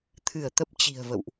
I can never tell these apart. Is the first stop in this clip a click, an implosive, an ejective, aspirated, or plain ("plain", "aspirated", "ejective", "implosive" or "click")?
aspirated